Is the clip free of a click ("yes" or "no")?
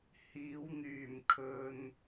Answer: yes